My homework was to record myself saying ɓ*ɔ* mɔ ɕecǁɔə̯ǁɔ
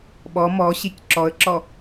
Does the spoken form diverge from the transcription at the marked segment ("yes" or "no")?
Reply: no